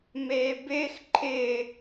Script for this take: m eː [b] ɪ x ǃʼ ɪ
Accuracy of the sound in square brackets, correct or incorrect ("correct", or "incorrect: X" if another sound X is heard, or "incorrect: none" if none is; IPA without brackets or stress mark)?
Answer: correct